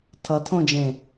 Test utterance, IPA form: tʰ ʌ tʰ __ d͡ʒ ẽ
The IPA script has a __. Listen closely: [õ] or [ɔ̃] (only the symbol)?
õ